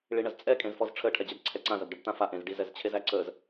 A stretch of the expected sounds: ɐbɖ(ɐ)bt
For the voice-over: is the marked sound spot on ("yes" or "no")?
yes